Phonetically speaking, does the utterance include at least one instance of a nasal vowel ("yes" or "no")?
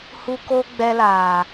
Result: no